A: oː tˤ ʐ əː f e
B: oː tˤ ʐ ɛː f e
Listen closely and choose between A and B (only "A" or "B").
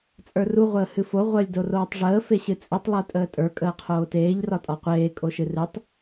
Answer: A